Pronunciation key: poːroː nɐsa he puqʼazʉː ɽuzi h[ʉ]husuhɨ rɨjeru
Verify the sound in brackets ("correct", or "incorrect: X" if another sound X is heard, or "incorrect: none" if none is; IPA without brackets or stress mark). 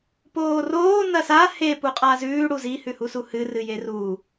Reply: correct